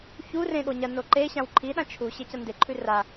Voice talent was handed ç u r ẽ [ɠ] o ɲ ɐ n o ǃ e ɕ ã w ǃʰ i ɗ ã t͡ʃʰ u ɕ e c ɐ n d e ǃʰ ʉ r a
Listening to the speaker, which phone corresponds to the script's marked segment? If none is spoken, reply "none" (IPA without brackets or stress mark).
ɠ